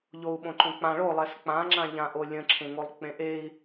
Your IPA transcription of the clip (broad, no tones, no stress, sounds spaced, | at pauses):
ʎ o u̯ ɓ õ ǃ õ k͡p ã ɭ o lˠ ɛ s k͡p ã ŋ͡ǁ ã ʎ ã ʔ o lʲ ə̃ ǁʰ ẽ ŋ o lˠ k͡p ẽ ʔ e i̯